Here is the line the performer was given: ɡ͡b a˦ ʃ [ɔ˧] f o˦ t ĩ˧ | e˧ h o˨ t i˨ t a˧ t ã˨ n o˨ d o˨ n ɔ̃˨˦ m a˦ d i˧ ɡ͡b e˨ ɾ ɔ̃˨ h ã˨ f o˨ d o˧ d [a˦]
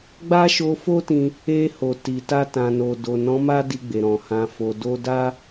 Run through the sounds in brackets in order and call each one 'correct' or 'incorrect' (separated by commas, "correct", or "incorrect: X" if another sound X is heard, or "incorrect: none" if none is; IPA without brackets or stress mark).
incorrect: o˧, correct